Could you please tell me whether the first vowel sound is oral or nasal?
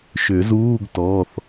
oral